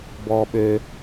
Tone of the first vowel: low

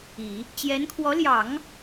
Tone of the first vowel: low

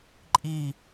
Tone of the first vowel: falling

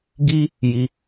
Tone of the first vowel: high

